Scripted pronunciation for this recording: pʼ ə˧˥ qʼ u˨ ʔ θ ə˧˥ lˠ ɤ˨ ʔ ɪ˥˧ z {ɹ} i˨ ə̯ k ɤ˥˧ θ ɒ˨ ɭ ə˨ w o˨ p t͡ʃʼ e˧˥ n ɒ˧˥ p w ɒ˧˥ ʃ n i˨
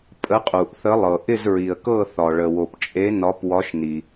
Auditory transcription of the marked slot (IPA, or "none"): ɹ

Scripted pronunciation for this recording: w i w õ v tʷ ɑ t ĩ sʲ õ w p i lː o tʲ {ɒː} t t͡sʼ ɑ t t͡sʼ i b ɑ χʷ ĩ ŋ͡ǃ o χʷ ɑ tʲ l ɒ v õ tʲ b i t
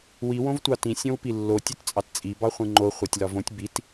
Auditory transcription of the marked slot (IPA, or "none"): ɒ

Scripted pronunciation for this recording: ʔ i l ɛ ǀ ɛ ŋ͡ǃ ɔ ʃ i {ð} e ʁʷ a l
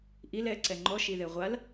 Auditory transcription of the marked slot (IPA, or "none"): ð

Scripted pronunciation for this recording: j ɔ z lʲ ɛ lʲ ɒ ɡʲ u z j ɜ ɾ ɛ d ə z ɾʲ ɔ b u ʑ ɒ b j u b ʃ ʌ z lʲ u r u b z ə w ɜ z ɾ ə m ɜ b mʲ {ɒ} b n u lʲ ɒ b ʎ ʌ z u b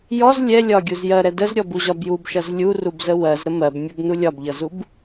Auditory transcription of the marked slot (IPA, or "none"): ʌ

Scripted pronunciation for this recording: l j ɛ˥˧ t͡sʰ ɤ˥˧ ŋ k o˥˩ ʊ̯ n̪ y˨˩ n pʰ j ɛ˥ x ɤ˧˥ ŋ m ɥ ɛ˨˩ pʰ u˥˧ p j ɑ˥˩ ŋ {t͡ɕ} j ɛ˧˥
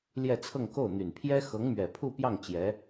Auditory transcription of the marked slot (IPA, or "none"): t͡ɕ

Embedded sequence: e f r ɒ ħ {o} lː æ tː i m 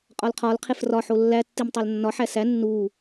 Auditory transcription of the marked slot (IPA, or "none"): o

